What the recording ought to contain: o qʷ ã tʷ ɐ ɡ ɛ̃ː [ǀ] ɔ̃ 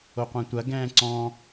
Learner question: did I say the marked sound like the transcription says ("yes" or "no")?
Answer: yes